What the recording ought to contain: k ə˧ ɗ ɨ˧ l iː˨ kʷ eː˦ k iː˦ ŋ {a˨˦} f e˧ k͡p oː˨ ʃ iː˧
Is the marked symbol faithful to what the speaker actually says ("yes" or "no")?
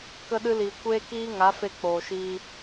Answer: yes